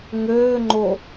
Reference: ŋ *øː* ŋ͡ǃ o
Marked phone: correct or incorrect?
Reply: correct